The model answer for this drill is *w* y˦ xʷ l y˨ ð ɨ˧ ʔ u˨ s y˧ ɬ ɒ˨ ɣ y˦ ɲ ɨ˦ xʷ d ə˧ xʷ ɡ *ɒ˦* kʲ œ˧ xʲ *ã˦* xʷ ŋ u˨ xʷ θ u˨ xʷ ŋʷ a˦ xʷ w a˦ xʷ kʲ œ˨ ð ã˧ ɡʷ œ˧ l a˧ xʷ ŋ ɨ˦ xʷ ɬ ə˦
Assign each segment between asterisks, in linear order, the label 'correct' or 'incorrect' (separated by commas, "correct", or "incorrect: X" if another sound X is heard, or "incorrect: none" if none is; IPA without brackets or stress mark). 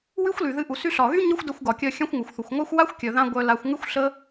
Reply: correct, incorrect: ɒ˨, correct